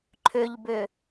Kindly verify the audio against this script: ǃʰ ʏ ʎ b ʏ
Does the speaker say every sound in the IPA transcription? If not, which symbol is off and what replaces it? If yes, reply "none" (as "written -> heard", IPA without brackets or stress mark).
none